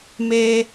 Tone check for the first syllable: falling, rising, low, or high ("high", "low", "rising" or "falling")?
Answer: high